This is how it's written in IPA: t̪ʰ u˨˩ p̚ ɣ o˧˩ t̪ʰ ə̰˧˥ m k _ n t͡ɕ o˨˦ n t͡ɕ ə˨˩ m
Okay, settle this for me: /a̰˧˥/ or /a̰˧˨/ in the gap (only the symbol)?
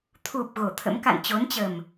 a̰˧˨